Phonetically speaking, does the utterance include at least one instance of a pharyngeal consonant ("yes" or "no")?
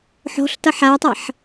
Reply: yes